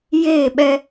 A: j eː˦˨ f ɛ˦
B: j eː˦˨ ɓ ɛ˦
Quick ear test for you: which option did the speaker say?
B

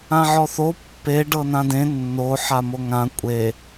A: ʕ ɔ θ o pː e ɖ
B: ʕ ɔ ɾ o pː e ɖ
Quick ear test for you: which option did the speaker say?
A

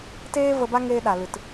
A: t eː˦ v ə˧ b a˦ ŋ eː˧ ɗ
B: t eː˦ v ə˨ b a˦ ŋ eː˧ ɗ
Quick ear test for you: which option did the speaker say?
A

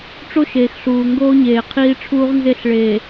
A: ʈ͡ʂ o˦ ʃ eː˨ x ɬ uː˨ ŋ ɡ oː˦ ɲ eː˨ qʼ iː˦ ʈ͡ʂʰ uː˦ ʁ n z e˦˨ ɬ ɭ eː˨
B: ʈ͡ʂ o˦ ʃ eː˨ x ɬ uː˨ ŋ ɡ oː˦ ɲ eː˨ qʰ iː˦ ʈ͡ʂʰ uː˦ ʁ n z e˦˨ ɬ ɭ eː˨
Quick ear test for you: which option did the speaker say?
B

